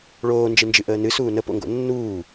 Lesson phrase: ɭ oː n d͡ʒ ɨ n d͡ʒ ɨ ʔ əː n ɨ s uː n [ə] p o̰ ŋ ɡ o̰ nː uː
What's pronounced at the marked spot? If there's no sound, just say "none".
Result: ə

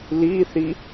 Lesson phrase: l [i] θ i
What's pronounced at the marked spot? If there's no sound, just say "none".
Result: i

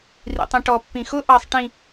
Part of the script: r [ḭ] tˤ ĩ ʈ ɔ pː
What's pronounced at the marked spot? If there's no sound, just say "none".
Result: ḭ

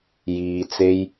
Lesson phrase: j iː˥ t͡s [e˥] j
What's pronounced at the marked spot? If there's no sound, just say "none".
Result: e˥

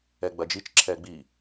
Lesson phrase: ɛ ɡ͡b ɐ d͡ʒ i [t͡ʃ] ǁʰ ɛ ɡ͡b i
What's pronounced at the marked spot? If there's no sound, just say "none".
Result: t͡ʃ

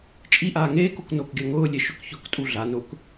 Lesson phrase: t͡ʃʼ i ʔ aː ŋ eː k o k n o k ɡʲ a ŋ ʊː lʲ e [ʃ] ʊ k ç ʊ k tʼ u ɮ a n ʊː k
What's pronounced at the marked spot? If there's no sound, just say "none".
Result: ʃ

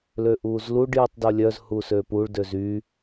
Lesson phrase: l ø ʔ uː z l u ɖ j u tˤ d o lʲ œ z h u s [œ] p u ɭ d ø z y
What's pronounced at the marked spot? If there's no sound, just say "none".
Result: ø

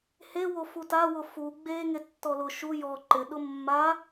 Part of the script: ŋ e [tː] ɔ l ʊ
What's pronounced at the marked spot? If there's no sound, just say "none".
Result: tː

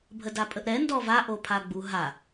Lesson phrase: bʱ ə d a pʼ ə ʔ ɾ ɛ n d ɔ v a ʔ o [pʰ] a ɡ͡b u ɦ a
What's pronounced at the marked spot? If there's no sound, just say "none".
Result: pʰ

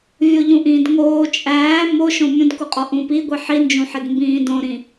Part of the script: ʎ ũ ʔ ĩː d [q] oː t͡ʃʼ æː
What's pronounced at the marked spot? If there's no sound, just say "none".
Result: ŋ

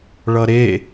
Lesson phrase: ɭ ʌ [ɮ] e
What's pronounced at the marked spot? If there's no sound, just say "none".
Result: ɾ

